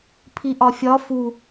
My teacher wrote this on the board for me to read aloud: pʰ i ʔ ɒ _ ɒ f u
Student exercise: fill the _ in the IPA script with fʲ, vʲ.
fʲ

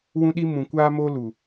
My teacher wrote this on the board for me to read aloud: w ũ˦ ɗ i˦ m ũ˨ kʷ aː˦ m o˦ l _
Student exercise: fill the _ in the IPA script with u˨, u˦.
u˨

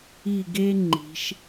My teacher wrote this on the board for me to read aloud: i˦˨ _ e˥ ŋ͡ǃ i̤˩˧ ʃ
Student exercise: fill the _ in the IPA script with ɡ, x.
ɡ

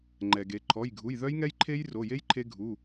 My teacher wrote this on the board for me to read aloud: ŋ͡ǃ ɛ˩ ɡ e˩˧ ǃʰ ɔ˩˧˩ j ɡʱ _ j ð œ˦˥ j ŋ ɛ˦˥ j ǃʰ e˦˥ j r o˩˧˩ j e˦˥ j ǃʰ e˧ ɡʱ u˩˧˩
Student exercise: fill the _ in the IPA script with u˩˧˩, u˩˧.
u˩˧˩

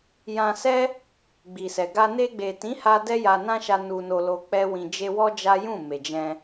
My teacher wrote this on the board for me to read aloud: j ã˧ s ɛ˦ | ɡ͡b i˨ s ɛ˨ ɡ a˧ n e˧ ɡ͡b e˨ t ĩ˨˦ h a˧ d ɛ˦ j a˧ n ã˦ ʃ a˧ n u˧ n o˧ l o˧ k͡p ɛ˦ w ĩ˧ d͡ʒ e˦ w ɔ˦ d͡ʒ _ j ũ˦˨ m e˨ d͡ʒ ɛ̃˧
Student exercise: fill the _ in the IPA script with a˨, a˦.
a˦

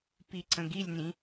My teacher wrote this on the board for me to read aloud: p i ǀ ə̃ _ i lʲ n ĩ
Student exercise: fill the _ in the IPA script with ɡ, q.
ɡ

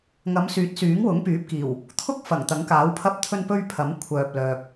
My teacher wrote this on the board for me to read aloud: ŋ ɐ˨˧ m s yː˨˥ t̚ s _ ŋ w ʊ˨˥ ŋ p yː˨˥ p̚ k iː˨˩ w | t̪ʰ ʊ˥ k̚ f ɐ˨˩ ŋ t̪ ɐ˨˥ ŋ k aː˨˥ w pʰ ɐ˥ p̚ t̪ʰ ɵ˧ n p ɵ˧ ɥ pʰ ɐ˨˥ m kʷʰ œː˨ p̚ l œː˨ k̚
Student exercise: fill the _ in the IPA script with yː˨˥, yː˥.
yː˨˥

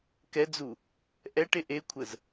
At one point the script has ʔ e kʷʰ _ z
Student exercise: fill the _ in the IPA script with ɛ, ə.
ə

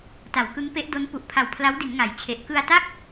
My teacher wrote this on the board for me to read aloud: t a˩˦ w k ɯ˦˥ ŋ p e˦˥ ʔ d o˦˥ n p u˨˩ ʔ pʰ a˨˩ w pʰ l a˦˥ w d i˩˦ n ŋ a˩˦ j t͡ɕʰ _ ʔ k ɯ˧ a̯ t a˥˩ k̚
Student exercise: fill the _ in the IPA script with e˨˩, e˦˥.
e˨˩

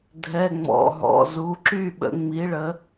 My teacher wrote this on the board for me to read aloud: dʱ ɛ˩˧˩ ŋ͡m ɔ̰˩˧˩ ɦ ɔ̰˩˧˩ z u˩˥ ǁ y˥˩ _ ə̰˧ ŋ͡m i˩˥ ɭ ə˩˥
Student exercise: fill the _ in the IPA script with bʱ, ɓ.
ɓ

